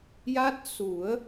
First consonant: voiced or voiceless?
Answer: voiced